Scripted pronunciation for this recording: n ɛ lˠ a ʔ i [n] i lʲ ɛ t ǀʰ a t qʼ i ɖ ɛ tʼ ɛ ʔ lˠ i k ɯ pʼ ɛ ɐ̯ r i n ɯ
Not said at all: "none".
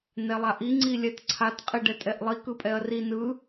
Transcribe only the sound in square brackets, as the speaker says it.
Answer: ŋ͡ǀ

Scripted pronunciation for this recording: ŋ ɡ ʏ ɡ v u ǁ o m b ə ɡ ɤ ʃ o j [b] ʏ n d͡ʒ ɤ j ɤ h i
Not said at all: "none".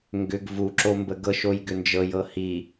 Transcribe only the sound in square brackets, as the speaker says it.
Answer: ɡ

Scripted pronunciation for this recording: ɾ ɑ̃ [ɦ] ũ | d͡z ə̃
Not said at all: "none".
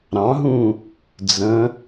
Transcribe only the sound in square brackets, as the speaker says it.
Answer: ɦ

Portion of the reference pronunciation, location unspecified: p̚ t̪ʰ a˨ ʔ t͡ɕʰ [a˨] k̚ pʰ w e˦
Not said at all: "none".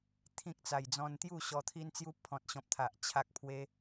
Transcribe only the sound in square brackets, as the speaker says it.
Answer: a˦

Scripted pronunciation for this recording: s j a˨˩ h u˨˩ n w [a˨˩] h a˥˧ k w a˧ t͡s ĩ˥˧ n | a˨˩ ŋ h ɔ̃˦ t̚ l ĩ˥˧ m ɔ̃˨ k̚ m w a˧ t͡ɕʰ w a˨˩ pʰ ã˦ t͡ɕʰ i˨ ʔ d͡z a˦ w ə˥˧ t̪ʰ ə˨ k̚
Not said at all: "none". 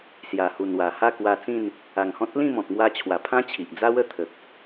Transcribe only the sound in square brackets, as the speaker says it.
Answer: a˨˩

